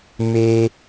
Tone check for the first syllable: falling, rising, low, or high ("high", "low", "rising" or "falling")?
high